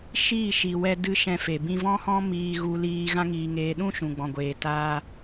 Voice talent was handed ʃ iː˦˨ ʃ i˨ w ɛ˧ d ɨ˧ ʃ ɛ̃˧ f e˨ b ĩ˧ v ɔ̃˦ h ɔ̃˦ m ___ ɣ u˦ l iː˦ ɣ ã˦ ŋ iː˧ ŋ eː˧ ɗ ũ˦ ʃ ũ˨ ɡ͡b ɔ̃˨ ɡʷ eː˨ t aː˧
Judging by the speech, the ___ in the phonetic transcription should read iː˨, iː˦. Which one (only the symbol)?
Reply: iː˦